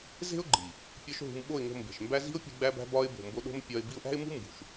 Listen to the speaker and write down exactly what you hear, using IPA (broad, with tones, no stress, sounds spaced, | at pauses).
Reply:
z e̤˦ ʊ̯ ɡ͡ǃ i˨ | pʲ ɒ˦ ʃ ɦ ṳ˧ m ɓ o˦˨ ɪ̯ ŋ o̤˧ m b e̤˨ ʃ m b æ˦ z i̤˦ ʊ̯ pʲ e̤˧ ɡ͡b æ˦ b æ̤˦ b ɒ˧ ɪ̯ b o̤˨ m b o˧ ɗ o̤˦ m pʲ ɒ˧ ɪ̯ b i˦ ʊ̯ ʔ æ̤˦ ɪ̯ m ṳ˦ m b ṳ˨ ʃ